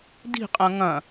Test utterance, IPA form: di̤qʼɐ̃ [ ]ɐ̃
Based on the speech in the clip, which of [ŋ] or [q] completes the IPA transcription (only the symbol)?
ŋ